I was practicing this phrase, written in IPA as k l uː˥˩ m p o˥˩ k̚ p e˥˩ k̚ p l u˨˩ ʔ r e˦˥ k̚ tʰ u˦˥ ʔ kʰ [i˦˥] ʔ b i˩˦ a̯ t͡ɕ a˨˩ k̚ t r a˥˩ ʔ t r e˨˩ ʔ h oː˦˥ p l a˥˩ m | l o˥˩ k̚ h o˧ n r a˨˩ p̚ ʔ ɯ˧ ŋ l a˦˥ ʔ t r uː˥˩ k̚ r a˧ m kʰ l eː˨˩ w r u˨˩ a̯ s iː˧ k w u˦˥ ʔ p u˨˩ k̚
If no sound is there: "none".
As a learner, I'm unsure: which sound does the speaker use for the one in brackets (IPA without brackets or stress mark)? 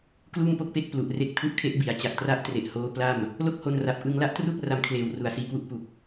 e˦˥